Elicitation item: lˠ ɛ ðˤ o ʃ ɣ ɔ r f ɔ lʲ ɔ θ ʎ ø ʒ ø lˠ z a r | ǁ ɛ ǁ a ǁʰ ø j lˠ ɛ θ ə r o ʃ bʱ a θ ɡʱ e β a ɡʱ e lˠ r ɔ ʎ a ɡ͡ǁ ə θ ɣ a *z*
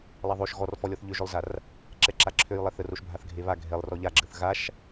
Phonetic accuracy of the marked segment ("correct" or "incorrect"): incorrect